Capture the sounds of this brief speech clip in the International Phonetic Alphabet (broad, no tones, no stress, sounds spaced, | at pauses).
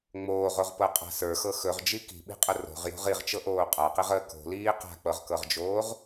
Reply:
ŋ͡m oː ʁ o ʁ p ɤ qʼ a̤ s ə˞ x ɤ x ɵ ʁ d͡ʒ i k i̤ ɓ i̤ qʼ ə r o̤ ʁ j o̤ ʁ i ʁ t͡ʃ ɤ ʔ oː qʼ a q i ʁ əː k o̤ l iː q a̤ k͡p ɤ ʁ k ɤ ʁ d͡ʒ oː ʁ